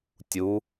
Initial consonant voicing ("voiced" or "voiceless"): voiceless